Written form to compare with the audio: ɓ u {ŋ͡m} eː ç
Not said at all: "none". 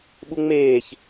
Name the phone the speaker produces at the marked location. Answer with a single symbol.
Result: ŋ͡m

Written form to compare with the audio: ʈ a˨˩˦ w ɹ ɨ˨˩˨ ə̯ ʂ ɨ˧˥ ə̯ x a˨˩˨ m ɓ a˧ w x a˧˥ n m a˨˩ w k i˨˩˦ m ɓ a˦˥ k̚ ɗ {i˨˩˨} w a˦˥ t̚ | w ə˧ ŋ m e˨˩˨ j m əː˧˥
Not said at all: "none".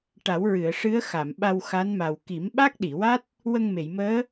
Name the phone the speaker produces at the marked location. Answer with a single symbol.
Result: i˨˩˨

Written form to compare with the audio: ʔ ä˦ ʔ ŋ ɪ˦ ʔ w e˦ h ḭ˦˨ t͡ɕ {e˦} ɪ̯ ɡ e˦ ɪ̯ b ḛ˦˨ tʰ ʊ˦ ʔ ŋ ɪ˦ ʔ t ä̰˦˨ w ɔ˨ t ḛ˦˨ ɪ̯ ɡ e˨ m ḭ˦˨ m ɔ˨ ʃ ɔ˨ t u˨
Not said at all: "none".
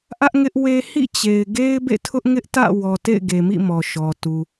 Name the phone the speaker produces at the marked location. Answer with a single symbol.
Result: e˨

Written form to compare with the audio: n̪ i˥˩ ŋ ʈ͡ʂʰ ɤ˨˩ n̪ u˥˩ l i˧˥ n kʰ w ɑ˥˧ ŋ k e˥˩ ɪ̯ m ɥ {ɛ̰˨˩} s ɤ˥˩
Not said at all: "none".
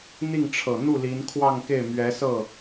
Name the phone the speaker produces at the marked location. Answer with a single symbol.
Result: ɛ˧˥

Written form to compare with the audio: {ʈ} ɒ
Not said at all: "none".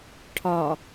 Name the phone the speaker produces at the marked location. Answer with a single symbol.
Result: ʈʰ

